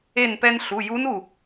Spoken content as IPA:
e˧˩ n p ɛ˧ n ɬ u˩˧˩ j u˧˥ n u˧˩

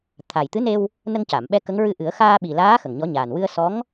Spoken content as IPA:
t̪ʰ a˨˩ j t̪ ɨ˧˥ n e˧ w | n ə˧ ŋ c a˨˩˨ m ɓ ɛ˧ k ə˧˥ ŋ ɹ ɨ˧ ʔ ɨ˨˩˦ ə̯ x aː˧ ɓ i˨˩ l aː˧˥ x ə˨˩ ŋ ɲ ɔ˧˥ ɲ aː˨˩ n w ɨ˧ ə̯ s ɔ˧˥ ŋ

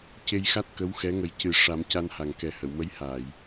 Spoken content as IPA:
c e˧ j x a˦˥ t̚ k ə˧˥ w x ɛ˧˥ ŋ ə˨˩ j c ɨ˨˩ ʂ a˨˩˦ m c a˧ n h a˨˩ ŋ k ɛ˨˩˦ h ə˨˩˨ w m ə˧˥ j h a˨˩˨ j

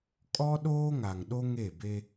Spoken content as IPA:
kʼ ɔ˦ ɗ oː˦ ŋ a˨ ŋ ɗ o˦ ŋ e˦˨ b e˦

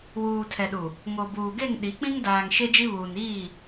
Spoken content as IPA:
w uː˨ tʰ ɛ˨ ɗ u˨ | ŋ o˨ b uː˨ ɡ e˦˨ ŋ ɗ i˨˦ k͡p ĩ˦ ŋ d aː˨ ŋ ʃ e˦ d͡ʒ i˦ β uː˨ n iː˦˨

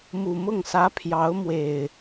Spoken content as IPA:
m u˨˩ m ʊ˥˨ ŋ s ä˨˦ pʰ j ɑ˨˦ ʊ̯ m w e˨˩ ɪ̯

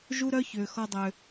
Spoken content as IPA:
ʒ u˦ ɾ œ˦ ç ʏː˨ x ɔ˧ dˤ ʏ˨

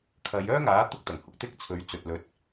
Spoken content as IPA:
kʰ ɐ˨˧ j œː˥ ŋ aː˨˥ t̪ ʊ˥ k̚ t̪ ɐ˨˩ ŋ h ʊ˧ k̚ t̪ ɪ˥ k̚ t͡sʰ ɵ˨˥ ɥ t͡s ɵ˨ t̚ l ɵ˨˥ t̚

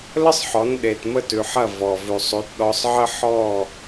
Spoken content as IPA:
l ə˥ sˤ ħ ɔ˩˥ n ɗ e˩ t m ə˥˩ t ʉ˩ ħ ɐ˥˩ v ɔ˩ v ʉ˩ sˤ ʉ˩˥ t ɗ ɔ˧ sˤ ʕ ə˥ ħ ɔ˥˩

